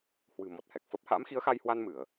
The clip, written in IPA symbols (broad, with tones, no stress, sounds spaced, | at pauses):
h w ɨ̤˨˩ m ɔ˨˩ t̚ h ɛ˨˩ k̚ f ə˦˥ p̚ h a̰˧˥ m x i˨˦ ə̯ x a˧ j h w a˧ n m ɨ˧˩˨ ə̯